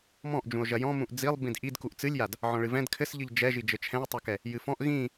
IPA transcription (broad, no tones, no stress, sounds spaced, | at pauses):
m ɔ̃ ʔ d͡ʒ ũ o̯ ʒ ɐ j ɔ̃ m ũ ʔ d͡z i lˠ b ĩ d ʔ i d k u ʔ t͡s ɨ lʲ j a d | ʕ ɔ̃ ɭ ɨ v ɛ̃ d kʰ ɘ s ʎ ɨ ʎ d͡ʒ ɛ ʒ i d͡ʒ ɘ t͡ʃʰ ɛ̃ e̯ tˤ o k ɛ | j ɨ f ɔ̃ ʔ ɣ ĩ